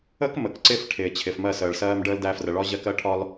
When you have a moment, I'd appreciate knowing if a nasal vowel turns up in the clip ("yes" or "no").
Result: no